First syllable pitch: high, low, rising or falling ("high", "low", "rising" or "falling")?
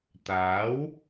rising